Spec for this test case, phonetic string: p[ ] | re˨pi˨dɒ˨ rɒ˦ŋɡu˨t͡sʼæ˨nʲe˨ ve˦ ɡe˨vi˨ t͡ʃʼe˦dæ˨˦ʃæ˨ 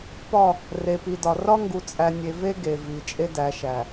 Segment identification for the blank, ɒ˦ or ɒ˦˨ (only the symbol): ɒ˦˨